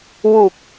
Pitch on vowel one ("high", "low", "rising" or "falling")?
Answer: low